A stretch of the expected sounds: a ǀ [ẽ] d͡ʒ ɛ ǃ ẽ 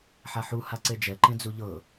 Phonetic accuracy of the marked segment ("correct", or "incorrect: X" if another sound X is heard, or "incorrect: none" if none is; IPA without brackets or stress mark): incorrect: e